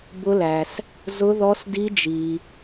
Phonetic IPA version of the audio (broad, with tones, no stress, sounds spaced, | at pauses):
b ʊ˦˥ l æ˩ s | z ʊ˦˥ ð ɔ˦˥ s d i˦˥ d͡ʒ i˩